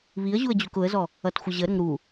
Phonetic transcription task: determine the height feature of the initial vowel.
high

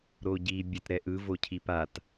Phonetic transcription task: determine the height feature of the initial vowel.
mid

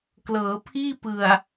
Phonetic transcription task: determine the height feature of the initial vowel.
mid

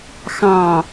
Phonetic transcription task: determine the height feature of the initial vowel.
low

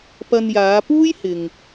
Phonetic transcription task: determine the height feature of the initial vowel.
low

